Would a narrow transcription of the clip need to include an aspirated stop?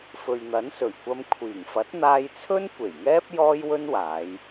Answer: yes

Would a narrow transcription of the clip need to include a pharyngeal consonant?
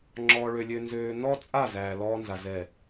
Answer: no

